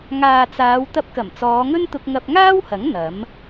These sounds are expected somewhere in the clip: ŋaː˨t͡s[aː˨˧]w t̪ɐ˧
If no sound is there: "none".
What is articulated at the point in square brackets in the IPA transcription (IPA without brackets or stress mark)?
aː˨˧